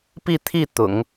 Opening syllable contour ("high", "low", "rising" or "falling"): falling